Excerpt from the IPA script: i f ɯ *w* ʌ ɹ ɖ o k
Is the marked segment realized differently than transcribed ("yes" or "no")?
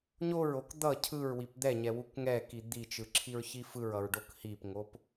yes